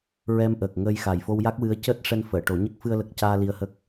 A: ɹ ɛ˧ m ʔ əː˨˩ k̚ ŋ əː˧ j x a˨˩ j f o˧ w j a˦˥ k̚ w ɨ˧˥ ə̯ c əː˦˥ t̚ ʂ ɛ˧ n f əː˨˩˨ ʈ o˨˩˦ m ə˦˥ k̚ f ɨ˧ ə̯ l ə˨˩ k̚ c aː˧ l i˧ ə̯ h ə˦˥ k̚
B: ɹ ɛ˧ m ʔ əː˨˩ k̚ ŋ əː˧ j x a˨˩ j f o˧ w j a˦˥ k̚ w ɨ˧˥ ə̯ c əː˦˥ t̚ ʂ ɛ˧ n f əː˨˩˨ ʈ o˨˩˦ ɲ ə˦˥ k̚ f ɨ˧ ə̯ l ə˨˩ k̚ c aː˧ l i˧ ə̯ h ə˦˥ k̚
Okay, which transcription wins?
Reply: B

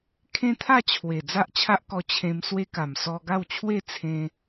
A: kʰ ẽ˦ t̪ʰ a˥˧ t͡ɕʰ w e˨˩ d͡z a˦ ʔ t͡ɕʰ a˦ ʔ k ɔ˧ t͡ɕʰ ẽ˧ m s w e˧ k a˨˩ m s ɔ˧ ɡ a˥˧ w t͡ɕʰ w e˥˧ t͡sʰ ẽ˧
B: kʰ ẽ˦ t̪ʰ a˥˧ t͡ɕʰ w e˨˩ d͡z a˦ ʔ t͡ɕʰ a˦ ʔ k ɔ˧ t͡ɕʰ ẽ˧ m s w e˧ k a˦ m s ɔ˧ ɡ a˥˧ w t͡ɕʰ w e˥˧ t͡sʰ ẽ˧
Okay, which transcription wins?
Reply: A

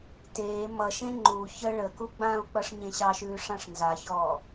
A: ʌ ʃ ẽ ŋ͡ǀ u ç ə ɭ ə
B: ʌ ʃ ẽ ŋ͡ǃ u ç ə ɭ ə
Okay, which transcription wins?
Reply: B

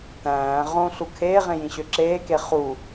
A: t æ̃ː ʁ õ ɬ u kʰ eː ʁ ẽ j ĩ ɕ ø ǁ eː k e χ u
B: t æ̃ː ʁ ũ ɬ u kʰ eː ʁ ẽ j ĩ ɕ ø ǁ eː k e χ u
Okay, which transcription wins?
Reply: A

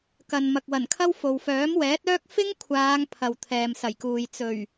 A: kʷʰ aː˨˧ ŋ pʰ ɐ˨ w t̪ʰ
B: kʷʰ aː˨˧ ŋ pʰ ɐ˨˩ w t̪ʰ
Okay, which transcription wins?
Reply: A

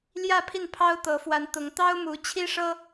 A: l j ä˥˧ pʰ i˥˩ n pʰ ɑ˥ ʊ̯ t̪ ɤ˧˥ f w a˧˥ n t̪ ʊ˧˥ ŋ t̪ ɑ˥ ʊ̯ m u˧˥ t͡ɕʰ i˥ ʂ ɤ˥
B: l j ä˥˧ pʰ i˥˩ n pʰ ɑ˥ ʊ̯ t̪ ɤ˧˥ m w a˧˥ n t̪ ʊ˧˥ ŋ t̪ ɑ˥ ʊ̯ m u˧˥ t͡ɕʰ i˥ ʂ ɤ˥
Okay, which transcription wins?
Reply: A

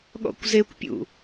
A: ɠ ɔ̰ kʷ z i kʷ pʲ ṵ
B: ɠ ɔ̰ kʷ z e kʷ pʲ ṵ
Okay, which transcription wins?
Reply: B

